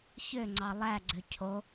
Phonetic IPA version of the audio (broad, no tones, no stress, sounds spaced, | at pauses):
ç ø ŋ͡ǀ ɑ lˠ æ ɡ͡ǀ ø cʰ o